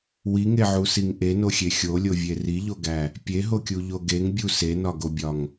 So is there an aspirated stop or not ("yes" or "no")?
no